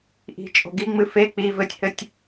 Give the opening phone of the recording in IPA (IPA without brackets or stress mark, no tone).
ʔ